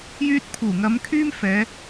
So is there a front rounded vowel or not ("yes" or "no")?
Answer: yes